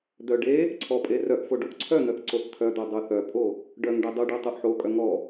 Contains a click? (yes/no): yes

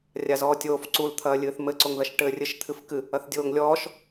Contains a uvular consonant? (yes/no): no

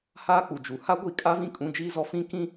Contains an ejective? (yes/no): yes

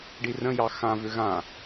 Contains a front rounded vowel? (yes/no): yes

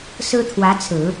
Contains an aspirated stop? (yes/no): yes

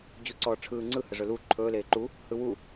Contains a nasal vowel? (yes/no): no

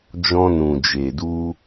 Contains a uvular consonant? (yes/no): no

